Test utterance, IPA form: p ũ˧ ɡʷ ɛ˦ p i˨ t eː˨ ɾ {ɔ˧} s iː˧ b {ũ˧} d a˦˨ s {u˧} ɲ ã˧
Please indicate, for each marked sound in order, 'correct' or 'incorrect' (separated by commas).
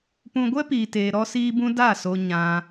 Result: correct, correct, incorrect